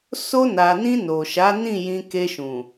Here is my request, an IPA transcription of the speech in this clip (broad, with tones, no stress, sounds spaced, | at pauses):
s o˧ n a˨ n ĩ˧ n o˨ ʃ a˨˦ n ĩ˦˨ j ĩ˧ k e˧ ʃ ũ˨